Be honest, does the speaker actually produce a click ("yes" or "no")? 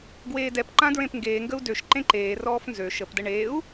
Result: yes